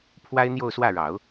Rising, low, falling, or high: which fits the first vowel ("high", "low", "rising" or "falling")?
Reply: high